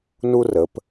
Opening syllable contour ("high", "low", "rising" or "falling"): high